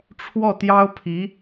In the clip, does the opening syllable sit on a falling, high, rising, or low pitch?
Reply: falling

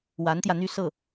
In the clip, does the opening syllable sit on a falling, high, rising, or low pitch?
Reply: rising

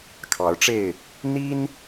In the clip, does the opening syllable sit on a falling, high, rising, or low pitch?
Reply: rising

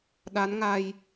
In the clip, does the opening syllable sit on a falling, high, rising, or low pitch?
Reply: rising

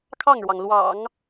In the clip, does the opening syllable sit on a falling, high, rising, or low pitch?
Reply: falling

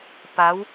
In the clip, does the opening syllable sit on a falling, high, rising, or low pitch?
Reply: rising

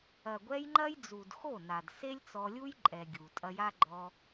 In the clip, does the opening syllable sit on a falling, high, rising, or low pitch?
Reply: low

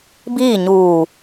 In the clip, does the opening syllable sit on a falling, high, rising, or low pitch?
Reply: falling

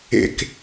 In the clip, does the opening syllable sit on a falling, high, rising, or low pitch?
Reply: low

